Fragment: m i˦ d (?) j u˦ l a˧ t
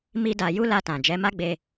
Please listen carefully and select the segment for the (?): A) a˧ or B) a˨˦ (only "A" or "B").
A